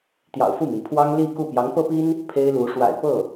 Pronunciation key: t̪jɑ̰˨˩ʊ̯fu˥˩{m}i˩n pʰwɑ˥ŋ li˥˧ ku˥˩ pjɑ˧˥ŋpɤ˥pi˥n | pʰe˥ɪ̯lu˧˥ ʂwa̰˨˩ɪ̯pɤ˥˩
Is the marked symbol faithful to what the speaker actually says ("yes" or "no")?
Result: yes